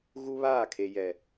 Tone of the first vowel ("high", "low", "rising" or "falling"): high